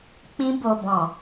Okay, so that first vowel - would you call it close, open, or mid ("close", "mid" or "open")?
close